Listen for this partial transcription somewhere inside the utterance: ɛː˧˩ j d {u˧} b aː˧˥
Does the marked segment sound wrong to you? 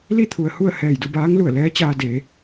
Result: yes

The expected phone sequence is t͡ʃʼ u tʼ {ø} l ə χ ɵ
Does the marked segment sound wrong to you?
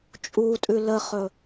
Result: yes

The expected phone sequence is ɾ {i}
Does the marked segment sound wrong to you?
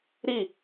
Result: no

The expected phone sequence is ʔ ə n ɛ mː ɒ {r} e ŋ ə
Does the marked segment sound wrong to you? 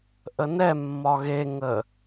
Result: yes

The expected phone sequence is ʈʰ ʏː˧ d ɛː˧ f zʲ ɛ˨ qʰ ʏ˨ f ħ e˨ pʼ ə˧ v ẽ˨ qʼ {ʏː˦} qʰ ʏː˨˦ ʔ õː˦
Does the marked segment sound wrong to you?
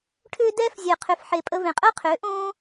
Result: yes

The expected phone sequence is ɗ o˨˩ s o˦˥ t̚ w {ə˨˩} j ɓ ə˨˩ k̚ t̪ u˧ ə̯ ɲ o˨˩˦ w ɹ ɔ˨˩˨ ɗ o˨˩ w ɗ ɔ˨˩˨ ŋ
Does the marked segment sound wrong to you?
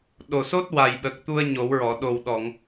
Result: yes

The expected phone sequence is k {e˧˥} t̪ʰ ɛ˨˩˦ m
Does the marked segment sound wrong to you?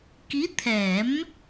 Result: yes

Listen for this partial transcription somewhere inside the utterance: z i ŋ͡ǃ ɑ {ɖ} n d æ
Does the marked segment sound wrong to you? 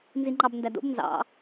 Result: yes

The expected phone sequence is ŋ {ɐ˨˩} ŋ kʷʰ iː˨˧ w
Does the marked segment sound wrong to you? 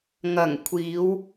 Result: no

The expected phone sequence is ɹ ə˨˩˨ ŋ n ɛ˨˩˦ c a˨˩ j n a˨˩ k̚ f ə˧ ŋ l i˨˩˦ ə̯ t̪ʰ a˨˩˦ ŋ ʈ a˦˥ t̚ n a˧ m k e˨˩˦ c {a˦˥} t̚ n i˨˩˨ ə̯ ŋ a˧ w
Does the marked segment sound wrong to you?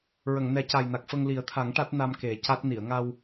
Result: no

